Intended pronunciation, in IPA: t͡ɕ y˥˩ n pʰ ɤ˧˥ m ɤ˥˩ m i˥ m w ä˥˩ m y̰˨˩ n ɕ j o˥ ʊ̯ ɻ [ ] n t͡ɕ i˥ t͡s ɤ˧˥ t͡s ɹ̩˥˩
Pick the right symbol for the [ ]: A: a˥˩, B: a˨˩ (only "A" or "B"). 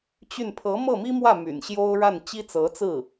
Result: A